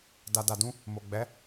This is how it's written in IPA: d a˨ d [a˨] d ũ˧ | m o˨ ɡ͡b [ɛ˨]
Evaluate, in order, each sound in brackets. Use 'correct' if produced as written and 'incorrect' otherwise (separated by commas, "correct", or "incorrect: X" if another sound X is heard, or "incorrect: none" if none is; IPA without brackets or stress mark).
correct, incorrect: ɛ˨˦